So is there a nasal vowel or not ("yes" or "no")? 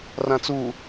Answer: yes